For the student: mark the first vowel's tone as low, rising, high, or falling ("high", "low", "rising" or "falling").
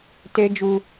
high